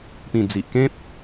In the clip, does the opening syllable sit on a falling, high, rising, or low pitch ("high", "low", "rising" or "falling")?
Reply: low